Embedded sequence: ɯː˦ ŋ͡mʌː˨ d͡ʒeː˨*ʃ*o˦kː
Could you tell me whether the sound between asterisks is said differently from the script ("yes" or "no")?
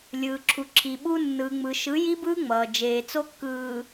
yes